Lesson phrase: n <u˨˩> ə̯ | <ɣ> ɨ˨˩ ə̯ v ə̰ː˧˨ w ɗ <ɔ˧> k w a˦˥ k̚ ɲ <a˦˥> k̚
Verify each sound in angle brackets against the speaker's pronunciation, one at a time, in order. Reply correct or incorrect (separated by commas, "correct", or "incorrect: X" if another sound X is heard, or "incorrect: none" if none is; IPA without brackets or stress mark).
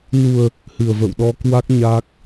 correct, incorrect: h, correct, incorrect: aː˦˥